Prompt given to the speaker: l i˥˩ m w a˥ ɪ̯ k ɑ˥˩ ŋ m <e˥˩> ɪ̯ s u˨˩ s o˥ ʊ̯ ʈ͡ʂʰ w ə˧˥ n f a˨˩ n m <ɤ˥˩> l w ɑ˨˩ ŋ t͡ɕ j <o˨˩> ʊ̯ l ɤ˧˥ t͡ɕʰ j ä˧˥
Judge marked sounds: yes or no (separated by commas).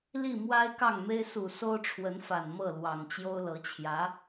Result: no, yes, no